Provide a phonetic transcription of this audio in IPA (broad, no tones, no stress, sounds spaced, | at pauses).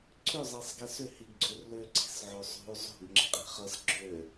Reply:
ǀʰ ʏ zˤ e sˤ ɡ ɛ s ʏ h i ɡ ɡ͡ǀ ø r l ø ǀ i̤ s ʕ o sˤ o̤ u̯ zˤ o̤ ɡ ŋ͡ǁ ɪ qʼ e̤ χ ʌ s ɡ͡ǁ ø